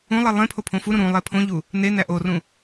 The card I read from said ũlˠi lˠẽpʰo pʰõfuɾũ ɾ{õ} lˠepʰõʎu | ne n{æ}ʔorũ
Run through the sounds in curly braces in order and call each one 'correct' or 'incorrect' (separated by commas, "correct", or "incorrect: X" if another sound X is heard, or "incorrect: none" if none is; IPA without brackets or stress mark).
incorrect: ũ, correct